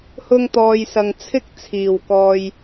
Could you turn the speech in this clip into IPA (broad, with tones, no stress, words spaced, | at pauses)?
hʊ˧ŋt̪ɔː˨jsɐ˨ŋ t͡sʰɪ˥k̚t͡sʰiː˨˩w kɔː˨j